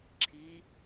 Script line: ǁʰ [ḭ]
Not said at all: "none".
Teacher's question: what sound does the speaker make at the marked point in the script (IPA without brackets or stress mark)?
i